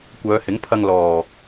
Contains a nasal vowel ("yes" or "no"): no